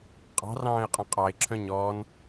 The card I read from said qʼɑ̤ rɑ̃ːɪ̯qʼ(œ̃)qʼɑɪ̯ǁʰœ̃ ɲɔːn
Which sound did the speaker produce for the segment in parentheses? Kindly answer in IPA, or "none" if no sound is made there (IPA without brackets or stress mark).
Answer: œ̃